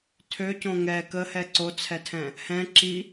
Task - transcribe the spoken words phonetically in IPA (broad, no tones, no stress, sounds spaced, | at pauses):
tʰ ø c õ ŋ ɛ k ə h ɛ ǀ o t͡sʰ ɛ tʰ ɛ̃ | h ɛ̃ ǁ i